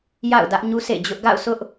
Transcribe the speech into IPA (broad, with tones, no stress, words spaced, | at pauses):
ja̰˦˨ʊ̯dä˦ʔ ɲu˦sʰḛ˦˨d͡ʑʊ˦ʔ ɡa̰˦˨ʊ̯sʊ˦ʔ